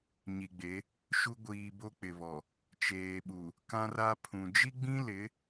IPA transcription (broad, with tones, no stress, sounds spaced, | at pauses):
ɲ i˨ ɡ͡b e˨˦ | ʃ u˦ ɡʷ iː˨ b o˦ k͡p ɪ˨ β ɔ˨ | t͡ʃ eː˨ ɓ u˨ | k ã˦ r a˦ pʰ ũ˨ d͡ʒ i˦ ɡ͡b ĩ˦ l ɪ˨˦